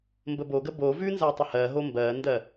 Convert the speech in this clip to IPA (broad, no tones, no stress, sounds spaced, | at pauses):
m b ə b o ɡ ə b o v ʉ n z a tˤ ə h ɜ ɦ o m b ɜː n d ɜ